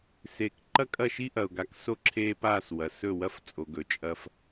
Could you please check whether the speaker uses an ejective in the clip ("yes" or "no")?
yes